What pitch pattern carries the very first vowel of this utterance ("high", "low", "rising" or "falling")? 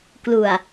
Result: low